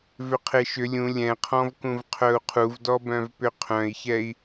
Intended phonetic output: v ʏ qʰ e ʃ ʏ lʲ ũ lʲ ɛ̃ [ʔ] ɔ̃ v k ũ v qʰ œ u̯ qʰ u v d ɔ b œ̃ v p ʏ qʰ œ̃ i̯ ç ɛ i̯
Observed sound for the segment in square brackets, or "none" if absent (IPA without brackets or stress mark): qʰ